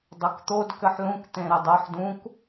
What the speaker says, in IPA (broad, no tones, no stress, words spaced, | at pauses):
dˤʌkt̪od kɘħlũk t̪ẽɾɘdˤɤħ dũk